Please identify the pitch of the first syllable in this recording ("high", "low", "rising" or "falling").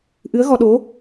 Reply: rising